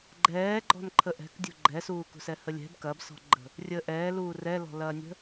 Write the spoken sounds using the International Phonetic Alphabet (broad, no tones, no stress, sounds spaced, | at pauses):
ɡ͡ǃ ɛː ɡ͡ǃ ɔ̤ n ǃʰ ə ʔ ɛ̤ k dʲ ṳ ɡ͡ǃ ɛ s uː k ṳ s ɛ h ə lʲ ɛ̤ b k ɐː b s ɔ̤ ɡ͡ǃ ə̤ | rʲ əː ʔ ɛː l uː r ɛ l ɔ̤ l ɐː nʲ ə̤